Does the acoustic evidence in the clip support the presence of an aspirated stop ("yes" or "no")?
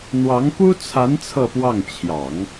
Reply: yes